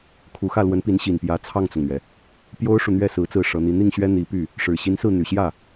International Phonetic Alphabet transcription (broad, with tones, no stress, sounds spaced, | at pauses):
kʰ u˧˥ x ä˥˩ l w ə˧˥ n p i˧˥ n ɕ i˨˩ n p j ä˧˥ t͡sʰ ɑ˥˩ ŋ t͡s ʊ˩ ŋ n̪ ɥ ɛ˩ | p j o˥ ʊ̯ ʂ u˨ n̪ ɥ ɛ˥˩ s ɹ̩˧˥ t͡s ɹ̩˥˩ ʂ ɤ˧˥ n̪ i˧˥ n̪ i˥˩ ŋ ɕ ɥ ɛ˥ n̪ i˧˥ p y˥˩ | ʂ ɻ̩˨˩ ɕ i˧˥ n s ɹ̩˥˩ n̪ y˨˩ ɕ j ä˥˩